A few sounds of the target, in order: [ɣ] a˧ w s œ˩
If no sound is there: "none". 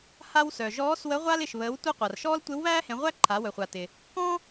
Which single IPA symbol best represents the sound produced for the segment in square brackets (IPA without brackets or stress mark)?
h